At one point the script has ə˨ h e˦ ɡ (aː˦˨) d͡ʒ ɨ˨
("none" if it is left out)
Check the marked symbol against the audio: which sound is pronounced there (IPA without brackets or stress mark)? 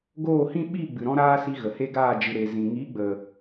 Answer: aː˦˨